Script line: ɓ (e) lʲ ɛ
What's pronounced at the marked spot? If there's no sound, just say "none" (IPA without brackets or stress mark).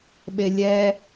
e